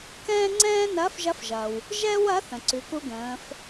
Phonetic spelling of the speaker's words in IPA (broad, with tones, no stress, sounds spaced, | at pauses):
k ɛ̃ː˥ ŋ͡ǀ ɛ̃ː˥ n ɐː˧˥ f ʒ ɐ˧˥ f ʒ ɐː˩ w | ʒ ɛ˥ w ɐ˧˥ θ ə̃˩ ǀ ʉ˩˧ k u˧ ɡ ə̃ː˩˧ f